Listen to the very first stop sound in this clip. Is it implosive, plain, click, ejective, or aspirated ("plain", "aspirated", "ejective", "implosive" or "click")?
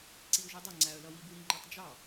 click